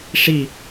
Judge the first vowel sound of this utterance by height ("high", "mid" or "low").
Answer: high